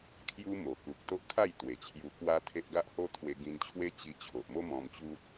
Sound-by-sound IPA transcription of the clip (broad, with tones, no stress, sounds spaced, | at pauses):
kʰ j u˦ m o˨˩ k u˨ k̚ t̪ o˦ ʔ kʰ a˥˧ j t̪ w e˨˩ t͡ɕʰ j u˧ k w a˦ t̪ʰ e˦ ʔ ɡ a˦ ʔ h o˦ t̪ʰ w e˧ ɡ ĩ˧ n t͡ɕʰ w e˦ t͡ɕ i˧ t͡ɕʰ o˨ ʔ m o˦ m ɔ̃˧ m t͡ɕ u˦ t̚